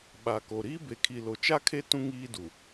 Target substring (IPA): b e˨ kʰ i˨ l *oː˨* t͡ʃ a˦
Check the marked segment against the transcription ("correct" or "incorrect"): incorrect